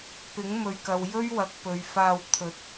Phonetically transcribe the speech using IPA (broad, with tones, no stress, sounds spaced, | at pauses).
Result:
p ɪ˨˥ ŋ m ɵ˨ ɥ k ɐ˨ w j ɵ˥ ɥ w ɐ˨ k̚ p ɵ˨ ɥ f aː˧ w t̪ʰ ɵ˨˥ t̚